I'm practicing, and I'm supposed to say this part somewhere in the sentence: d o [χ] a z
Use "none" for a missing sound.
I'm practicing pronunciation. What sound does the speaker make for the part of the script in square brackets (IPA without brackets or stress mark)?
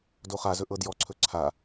χ